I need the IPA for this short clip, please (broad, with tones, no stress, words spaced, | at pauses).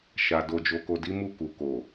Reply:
ʃa˨ do˨d͡ʒo˨ko˨di˨˦ mu˦˨ku˨ ko˨